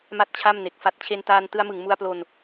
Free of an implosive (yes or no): yes